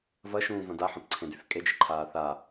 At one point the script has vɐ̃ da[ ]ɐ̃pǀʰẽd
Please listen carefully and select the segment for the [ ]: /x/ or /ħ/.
ħ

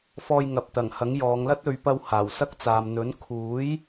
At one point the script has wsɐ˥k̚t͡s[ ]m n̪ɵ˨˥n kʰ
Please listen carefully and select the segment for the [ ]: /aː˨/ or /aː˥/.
aː˨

